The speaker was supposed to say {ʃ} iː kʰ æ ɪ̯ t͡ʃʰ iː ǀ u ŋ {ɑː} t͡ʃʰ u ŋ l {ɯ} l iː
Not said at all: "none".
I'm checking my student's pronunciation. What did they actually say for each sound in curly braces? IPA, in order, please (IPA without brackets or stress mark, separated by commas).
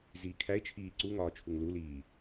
z, ɒː, u